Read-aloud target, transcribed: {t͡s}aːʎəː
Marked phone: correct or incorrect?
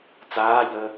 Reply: correct